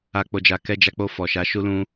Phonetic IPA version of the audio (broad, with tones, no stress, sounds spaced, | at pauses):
a˨ k͡p o˨ d͡ʒ a˨ k ɛ˧ d͡ʒ a˧ k͡p o˧ f ɔ˨ ʃ a˨˦ ʃ u˦ l ũ˦